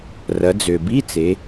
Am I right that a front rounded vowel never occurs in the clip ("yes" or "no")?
no